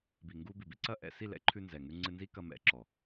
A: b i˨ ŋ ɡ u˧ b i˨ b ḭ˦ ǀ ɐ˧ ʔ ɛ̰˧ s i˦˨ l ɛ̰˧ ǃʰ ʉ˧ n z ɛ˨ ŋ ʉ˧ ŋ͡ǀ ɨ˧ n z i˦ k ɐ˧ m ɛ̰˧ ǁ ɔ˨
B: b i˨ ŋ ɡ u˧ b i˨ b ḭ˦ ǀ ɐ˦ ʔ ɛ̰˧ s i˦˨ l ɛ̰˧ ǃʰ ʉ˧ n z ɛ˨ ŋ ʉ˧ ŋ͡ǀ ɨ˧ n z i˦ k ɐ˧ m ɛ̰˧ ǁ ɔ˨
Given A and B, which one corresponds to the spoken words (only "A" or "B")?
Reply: B